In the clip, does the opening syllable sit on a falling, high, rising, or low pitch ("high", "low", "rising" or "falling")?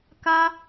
high